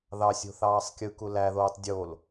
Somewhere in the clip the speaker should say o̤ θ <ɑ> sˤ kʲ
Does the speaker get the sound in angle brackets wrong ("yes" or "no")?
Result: yes